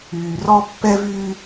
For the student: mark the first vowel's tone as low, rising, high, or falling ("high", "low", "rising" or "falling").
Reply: low